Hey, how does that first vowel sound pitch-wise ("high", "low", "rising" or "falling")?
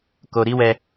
low